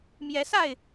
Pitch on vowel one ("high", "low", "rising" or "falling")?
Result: rising